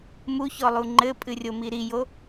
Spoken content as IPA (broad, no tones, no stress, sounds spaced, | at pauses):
m u ç ɔ lˠ u ŋ͡ǃ ɘ pʼ ɨ rʲ o m i ɾ i j o